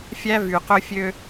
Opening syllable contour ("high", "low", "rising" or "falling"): high